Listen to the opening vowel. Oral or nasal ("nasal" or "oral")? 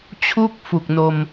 oral